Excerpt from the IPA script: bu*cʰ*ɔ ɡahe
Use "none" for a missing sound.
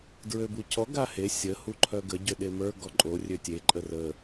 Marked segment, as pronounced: cʰ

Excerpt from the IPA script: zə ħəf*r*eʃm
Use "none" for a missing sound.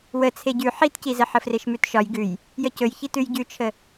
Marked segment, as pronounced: r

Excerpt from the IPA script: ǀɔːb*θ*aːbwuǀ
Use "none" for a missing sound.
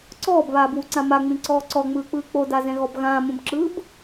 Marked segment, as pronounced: β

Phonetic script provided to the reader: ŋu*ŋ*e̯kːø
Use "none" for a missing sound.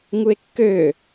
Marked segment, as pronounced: none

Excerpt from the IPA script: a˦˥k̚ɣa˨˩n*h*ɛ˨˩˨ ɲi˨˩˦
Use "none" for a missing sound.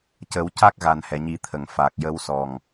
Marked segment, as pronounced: h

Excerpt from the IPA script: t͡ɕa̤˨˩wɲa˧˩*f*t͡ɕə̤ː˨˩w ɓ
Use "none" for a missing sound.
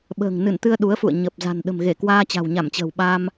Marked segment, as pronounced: m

